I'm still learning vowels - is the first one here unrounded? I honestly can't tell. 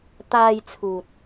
yes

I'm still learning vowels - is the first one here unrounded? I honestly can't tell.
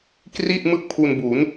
yes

